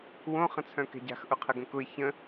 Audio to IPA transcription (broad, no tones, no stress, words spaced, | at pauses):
wõ χə̃t͡sʰœ̃kɛ̤ɟa̤x ʔʊqʰəɡə̃kʊɪ̯ çə̃